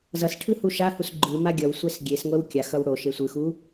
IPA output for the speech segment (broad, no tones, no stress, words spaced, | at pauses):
zʌsʈʰɯ huʃahus ɡ͡ǃɯma ɡʲʌwsʷɛs ɡʲesŋʷɛw kʲaxʌw ɽo ʃesʷɯxu